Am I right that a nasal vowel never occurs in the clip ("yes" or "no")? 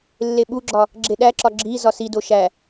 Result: yes